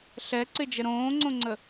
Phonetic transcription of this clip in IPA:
ɬɛǀɪd͡ʒə ɾõːŋ͡ǀõŋ͡ǀə

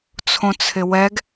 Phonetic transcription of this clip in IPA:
t͡sʰõt͡sʰɪwɛɡ

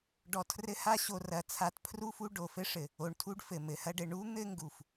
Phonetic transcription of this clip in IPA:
ɖɔ˨tʰrɘ˦ha˥ ɕo˨rɐ˩t͡sʰa˨t pʰru˥fu˦ ɖo˩fɘ˦ʂɘ˩ | o˨ɳtʰu˦ɖfɘ˩mɘ˩ hɐ˦ɖɘ˨ ɳu˥n̪ɘ˦ ŋɡu˩f

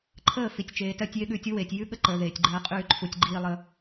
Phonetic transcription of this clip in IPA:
ǃʰəː˦˨ fi˨tʲt͡ʃeː˨tɜ˧tʲ je˦ɠʉː˧tʲu˦weː˨tʲ jʉ˦ɠə˦ǃəː˨ ðeː˨tʲɡ͡ǃɜː˧ qʼʉː˧ǃʰu˨tʲɡ͡ǃiː˧lˠə˧

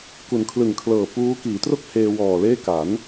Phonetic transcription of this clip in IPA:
ku˩˦nkʰlɯ˨˩ŋkʰlɤː˨˩puː˦˥ kiː˩˦tro˥˩k̚ heː˧ wɔː˨˩leː˥˩ ka˩˦n

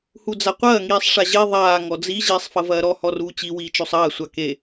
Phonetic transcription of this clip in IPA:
hud͡zaqʷɐː ŋiːsˤʂaʑe ðˤaː ŋɔd͡zi ʑiːsˤfɐvɐːɾɔ hɔruːt͡ɕi wiːt͡ʃosˤɐː sʷake

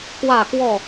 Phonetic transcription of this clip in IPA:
kwä˥˨kwɔ˥˨

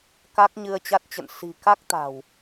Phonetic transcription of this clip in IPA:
ka˦˥k̚ɲɨ˧ə̯t͡ɕa˦˥t̚t͡ɕə̰˧˨n si̤˨˩ka˦˥k̚t̪a̤˨˩w

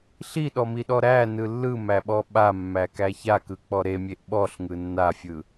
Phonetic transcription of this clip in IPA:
ɬiɗɔmiɗɔ ɾænɯ lːɯmæɓɔ ɓamːækæ çakɯk͡pɔ ɾemʲeʔ ɓɔɬŋɯ nːafʲɯ

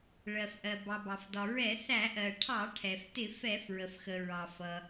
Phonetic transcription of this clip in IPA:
ɭɜ˩fʔɜ˩bɑ˩ bɑ˩f dɒ˩ɹɛ˧˩˧θæ˧˩˧ʔɜ˩ ʈʰɑ˧˩˧ʈʰɛ˩ftɪ˧˩˧ fɛ˧˩˧fɹə˩fxə˩ ɹɑ˩fʌ˩

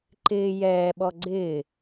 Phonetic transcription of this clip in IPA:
ǃɪː jɛːɓɔ ɡ͡ǀɪː

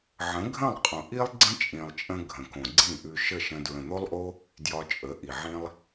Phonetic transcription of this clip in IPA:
ʕə̃˨˦ɡʱə̃˦˨lˠqʼõ˨ʔi˦lˠ ɡ͡ǀə̃˦t͡ʃʼĩ˨lˠt͡ʃʼə̃˧ ɡʱə̃˨kõ˨ɡ͡ǀĩ˦˨ʔʉ˧ ʃə˦˨ ʃə̃˧ dɹə̃˨n̪o˦lˠʔo˦ | djɒ˧t͡ʃʼə˨˦ ʔi˨ʕĩ˦lˠ

